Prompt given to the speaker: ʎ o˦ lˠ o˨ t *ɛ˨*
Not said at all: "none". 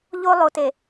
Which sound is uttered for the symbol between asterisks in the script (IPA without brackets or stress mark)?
e˨